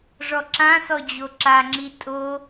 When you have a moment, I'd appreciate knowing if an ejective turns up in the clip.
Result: yes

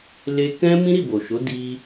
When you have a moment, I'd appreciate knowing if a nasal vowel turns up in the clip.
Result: yes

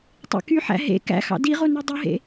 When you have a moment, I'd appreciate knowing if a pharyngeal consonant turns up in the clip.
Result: yes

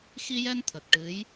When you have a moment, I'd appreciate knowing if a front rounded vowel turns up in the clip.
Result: no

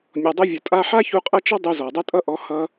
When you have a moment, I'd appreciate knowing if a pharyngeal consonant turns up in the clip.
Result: yes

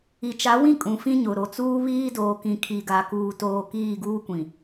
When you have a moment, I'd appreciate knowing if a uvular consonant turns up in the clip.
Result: no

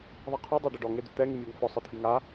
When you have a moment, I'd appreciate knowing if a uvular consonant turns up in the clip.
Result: yes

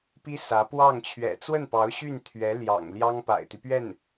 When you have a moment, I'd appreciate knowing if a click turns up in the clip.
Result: no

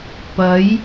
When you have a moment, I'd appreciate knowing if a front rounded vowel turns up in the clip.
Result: no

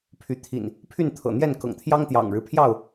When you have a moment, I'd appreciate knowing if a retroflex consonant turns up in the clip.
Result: yes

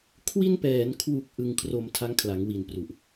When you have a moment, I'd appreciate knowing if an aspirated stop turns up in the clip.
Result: yes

